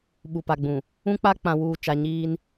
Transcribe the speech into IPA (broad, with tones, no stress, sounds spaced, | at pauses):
ɓ u˨ p a˨ ɡ͡b ũ˨ | ũ˦ k͡p a˦ k͡p ã˨ w uː˨ t͡ʃ a˨ ɲ iː˦ n